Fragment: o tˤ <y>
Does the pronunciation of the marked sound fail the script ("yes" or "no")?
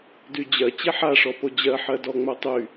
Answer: no